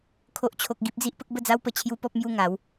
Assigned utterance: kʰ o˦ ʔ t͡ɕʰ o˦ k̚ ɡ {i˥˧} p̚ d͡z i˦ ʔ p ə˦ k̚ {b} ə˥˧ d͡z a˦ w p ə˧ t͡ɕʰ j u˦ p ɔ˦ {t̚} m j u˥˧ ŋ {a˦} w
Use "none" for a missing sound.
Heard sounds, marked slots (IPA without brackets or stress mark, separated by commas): i˦, b, p̚, a˨˦